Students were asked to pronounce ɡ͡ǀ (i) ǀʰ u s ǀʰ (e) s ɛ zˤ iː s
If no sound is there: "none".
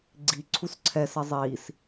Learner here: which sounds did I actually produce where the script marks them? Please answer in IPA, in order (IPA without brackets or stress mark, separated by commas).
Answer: i, ɛ